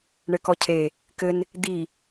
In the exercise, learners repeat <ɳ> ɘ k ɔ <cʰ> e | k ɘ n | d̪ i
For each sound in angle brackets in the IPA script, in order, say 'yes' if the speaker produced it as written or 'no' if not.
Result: yes, yes

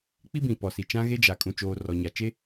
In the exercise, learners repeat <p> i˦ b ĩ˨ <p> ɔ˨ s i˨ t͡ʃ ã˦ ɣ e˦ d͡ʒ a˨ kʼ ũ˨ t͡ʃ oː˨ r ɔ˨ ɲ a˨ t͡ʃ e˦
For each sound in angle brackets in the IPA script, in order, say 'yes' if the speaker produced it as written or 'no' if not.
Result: no, yes

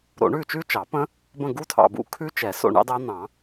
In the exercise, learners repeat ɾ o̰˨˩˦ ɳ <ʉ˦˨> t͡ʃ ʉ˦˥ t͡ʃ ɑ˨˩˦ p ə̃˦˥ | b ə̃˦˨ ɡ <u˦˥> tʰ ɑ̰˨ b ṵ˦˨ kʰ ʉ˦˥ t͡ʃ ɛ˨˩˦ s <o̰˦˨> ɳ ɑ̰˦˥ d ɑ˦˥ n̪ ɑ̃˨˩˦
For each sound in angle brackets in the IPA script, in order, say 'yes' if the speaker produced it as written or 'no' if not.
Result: yes, yes, yes

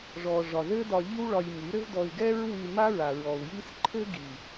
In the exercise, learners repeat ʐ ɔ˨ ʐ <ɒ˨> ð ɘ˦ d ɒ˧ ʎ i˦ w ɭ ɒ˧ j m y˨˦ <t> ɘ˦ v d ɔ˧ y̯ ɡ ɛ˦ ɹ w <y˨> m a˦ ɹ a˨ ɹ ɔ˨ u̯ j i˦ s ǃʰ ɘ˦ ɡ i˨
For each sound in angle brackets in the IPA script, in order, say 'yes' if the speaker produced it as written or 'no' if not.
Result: yes, no, no

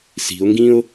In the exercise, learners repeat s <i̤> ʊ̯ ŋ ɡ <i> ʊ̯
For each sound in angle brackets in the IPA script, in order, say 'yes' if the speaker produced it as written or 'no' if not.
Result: yes, no

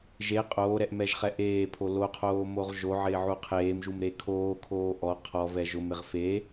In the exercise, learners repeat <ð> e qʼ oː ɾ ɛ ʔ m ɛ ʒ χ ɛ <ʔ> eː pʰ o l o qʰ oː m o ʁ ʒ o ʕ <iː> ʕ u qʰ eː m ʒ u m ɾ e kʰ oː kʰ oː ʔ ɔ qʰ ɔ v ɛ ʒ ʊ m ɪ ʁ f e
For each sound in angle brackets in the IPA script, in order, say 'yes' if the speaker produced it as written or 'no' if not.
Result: no, yes, no

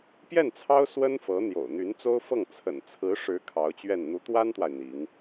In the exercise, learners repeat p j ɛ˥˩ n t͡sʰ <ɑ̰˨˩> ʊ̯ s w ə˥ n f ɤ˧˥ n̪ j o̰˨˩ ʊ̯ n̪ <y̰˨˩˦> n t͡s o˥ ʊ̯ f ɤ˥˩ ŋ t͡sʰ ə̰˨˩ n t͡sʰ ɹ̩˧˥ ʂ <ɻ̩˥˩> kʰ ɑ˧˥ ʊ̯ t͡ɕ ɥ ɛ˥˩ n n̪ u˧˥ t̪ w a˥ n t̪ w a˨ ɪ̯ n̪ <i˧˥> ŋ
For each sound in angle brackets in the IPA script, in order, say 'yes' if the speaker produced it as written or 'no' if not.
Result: no, no, no, yes

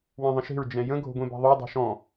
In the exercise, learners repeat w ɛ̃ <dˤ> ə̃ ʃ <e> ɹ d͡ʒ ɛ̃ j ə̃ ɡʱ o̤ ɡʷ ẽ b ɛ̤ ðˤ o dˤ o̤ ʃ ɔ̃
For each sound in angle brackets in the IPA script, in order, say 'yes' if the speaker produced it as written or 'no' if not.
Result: no, no

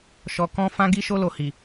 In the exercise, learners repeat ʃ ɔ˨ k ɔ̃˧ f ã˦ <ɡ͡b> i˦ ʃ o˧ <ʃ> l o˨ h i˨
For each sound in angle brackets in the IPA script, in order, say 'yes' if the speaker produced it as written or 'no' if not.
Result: no, no

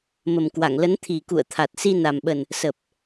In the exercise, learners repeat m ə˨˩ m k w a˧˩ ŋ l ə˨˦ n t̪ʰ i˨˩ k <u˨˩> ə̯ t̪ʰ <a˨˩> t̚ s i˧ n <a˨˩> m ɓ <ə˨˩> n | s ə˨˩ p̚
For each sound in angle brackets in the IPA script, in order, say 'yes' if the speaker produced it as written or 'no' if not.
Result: no, yes, yes, yes

